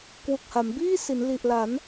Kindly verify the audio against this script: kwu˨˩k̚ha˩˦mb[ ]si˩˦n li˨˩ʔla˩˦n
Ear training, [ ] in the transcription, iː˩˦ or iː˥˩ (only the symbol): iː˥˩